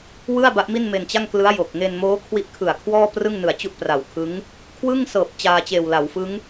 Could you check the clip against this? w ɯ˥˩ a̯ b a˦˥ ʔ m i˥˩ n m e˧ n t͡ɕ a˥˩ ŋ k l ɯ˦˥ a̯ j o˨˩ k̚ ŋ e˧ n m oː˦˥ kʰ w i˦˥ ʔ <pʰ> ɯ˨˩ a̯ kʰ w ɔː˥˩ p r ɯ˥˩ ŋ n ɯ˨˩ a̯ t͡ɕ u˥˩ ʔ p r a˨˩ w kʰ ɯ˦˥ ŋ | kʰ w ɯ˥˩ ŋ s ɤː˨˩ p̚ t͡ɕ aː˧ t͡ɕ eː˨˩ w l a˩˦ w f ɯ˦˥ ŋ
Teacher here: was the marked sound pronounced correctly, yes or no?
no